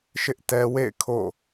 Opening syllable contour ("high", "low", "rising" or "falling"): high